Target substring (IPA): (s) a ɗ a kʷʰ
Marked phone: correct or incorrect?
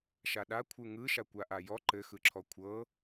incorrect